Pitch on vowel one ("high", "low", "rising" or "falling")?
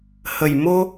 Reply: low